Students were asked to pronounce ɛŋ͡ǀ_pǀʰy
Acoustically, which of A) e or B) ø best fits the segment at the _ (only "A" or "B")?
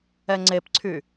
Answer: A